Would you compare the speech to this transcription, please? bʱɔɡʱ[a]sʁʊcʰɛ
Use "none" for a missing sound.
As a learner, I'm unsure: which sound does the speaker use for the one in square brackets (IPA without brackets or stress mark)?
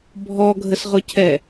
ə